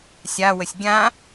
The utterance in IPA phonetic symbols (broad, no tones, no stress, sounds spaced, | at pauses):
sʲ a w ə sʲ ɡʲ ã